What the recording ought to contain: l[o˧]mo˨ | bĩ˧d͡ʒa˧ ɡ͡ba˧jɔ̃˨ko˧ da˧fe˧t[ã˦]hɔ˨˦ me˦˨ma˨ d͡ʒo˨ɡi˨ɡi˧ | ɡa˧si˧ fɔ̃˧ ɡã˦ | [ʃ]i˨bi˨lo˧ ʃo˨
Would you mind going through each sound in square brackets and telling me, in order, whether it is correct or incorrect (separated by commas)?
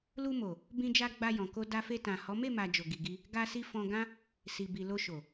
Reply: incorrect, incorrect, incorrect